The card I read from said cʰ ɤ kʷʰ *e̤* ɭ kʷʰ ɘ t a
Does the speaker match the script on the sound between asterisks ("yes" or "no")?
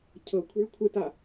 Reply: yes